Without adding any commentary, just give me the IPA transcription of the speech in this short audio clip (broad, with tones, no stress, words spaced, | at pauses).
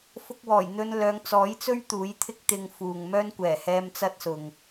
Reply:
fʊ˧k̚wɔː˨˩jn̪ɵ˧n lœː˨˧ŋt͡sɔː˨˥jt͡sɵ˥ɥ t̪uː˨˥jt̪ʰɪ˥k̚t̪ɪ˧ŋ fuː˨ŋ mœː˥nkʷɛː˨˩ hɛː˧m t͡sɐ˥t̚sʊ˨ŋ